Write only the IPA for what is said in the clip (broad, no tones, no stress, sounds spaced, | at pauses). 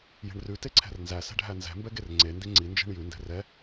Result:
j e̤ ɳ r ʉ t e ǀʰ ɛ̤ r n z æ s ɛ̤ ɖʱ æ n z ɛ̤ m b ɛ ɡ e r ŋ͡ǀ e n d i ŋ͡ǀ i n d͡ʒ e̤ ɳ j ʉ n d ɛ̤ r ɛ